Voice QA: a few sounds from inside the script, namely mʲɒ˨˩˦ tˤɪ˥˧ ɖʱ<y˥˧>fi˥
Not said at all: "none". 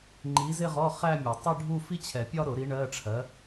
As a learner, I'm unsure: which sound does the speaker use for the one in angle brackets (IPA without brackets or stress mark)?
u˥˧